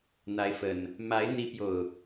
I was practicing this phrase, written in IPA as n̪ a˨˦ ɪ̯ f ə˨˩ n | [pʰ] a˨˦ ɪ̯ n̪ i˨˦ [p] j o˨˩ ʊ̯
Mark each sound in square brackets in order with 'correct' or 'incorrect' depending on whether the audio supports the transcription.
incorrect: m, correct

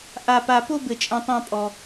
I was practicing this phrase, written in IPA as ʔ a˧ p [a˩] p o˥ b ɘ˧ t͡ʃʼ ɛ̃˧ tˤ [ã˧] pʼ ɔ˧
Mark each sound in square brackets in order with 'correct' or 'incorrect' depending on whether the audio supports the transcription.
incorrect: a˧, incorrect: ã˥

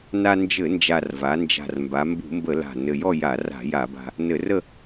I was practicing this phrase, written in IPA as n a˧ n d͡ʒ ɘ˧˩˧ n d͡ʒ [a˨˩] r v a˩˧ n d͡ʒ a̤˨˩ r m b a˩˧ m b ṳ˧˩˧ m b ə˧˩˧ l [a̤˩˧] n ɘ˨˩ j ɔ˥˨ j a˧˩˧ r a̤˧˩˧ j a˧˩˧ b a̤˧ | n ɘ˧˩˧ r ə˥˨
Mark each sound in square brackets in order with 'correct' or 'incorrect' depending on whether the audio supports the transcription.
correct, incorrect: a̤˨˩

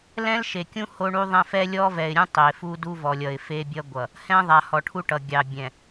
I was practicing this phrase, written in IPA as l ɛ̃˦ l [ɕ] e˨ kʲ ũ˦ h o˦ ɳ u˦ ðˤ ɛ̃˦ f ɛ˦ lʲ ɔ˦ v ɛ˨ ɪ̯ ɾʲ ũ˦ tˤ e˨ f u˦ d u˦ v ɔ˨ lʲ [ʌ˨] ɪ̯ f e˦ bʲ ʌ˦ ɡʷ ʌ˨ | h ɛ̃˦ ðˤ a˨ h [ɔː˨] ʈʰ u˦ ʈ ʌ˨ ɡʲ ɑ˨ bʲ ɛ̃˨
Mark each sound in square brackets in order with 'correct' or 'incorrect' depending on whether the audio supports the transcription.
incorrect: ʃ, correct, incorrect: ɔ˨

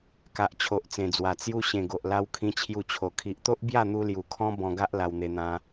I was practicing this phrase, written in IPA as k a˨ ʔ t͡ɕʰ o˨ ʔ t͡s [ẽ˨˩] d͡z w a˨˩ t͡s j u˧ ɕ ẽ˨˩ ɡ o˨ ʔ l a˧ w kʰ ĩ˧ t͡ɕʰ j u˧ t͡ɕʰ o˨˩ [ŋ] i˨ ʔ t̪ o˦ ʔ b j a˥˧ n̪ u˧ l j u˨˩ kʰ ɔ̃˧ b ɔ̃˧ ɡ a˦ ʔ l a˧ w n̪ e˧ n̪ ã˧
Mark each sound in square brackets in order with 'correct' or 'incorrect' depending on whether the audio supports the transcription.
correct, incorrect: kʰ

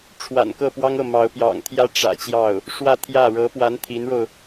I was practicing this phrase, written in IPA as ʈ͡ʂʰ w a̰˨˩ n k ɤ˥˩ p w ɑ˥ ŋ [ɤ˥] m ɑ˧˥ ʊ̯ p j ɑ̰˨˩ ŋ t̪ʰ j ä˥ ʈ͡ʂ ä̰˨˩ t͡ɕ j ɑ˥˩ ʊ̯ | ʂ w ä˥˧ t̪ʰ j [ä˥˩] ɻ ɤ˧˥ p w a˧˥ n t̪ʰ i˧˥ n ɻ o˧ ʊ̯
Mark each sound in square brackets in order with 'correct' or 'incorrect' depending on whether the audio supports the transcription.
incorrect: ɤ˥˩, correct

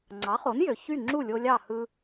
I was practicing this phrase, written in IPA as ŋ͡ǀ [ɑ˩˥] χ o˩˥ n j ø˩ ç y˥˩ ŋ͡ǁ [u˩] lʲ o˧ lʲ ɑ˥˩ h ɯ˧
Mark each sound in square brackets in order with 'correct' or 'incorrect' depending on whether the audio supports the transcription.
correct, incorrect: u˥˩

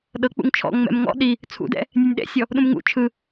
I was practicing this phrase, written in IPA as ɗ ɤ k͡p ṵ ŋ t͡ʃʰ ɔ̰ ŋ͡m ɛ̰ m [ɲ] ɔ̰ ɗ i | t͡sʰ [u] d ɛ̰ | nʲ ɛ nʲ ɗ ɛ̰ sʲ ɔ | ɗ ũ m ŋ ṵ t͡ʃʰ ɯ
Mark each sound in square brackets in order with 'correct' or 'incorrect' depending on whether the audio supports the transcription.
incorrect: ŋ, incorrect: ṵ

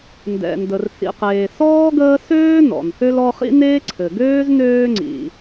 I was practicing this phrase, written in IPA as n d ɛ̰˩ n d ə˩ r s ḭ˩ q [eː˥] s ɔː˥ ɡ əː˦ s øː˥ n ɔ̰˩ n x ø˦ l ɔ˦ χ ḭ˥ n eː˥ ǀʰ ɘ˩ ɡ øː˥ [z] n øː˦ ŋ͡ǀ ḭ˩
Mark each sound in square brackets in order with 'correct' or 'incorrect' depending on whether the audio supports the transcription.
incorrect: eː˩, correct

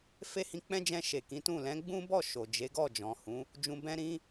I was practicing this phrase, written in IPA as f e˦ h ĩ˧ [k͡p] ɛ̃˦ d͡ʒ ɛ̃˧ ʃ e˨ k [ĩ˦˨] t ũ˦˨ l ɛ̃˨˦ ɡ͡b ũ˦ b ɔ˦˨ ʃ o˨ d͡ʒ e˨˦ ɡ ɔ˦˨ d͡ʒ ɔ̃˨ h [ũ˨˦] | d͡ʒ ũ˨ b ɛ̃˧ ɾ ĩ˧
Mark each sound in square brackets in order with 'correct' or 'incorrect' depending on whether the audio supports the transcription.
correct, incorrect: ĩ˨˦, correct

